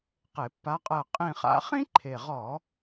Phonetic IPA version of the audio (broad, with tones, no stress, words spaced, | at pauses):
qe˧˩˧pːa˧˥qʼɜ˦˨ qʼĩ˦˨χa̰˧˥ χĩ˥ǃʰe˨˩ʁɔ˧˩˧